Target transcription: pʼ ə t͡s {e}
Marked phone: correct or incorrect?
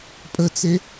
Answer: correct